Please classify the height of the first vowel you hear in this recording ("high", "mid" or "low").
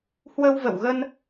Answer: mid